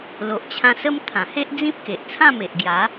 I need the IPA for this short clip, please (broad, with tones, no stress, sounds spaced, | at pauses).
l o˨ ʔ t͡ɕʰ ã˧ s ə˦ m t̪ʰ ã˨˩ h e˦ ʔ d͡z ĩ˦ p̚ k e˨ ʔ t͡sʰ ã˥˧ m e˨ ʔ ɡ j a˨˦